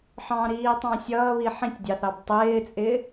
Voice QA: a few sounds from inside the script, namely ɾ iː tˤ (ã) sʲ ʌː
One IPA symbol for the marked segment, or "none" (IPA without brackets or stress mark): ɑ̃